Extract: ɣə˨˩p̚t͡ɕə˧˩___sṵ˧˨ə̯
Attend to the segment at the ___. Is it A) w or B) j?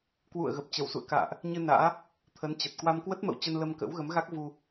A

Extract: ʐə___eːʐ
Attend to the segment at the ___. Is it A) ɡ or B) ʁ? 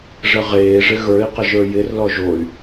B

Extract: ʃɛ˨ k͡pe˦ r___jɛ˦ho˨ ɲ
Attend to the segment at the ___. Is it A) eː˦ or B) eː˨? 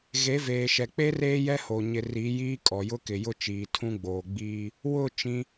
A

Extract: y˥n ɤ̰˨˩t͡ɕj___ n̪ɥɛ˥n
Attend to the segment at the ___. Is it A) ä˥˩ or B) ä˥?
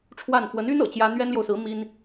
B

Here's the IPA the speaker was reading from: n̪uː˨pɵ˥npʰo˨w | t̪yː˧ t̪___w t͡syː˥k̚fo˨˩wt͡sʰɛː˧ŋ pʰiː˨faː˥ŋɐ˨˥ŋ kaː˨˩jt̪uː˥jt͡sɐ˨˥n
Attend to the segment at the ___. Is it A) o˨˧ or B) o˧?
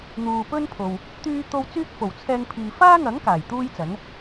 B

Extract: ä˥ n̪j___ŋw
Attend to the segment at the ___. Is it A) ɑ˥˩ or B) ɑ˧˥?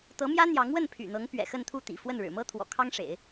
B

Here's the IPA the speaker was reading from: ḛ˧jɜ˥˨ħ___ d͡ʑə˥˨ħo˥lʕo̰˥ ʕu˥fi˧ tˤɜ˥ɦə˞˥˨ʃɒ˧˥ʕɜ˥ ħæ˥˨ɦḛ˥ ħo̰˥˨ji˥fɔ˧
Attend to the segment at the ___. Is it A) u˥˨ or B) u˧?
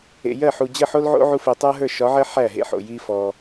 B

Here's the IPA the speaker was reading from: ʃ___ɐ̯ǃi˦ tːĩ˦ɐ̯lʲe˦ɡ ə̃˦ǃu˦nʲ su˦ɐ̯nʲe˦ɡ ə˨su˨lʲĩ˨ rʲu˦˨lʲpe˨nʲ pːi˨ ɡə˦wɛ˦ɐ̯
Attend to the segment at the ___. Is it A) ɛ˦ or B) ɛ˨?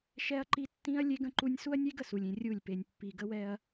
A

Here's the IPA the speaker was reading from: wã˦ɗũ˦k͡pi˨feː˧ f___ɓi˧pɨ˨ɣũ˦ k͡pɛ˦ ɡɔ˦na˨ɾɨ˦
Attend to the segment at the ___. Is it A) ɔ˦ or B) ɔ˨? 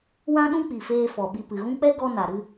B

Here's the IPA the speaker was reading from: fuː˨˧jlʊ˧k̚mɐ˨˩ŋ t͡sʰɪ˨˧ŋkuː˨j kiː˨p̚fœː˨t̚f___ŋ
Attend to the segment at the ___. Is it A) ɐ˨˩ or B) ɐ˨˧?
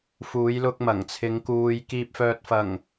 A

